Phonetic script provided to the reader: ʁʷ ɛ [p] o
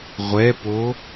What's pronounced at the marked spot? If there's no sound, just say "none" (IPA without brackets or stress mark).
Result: p